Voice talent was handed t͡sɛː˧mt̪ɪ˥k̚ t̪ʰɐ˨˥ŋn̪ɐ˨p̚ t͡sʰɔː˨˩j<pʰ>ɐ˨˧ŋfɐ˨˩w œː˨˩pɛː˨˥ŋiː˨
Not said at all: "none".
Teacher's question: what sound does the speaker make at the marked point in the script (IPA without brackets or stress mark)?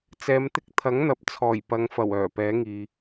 p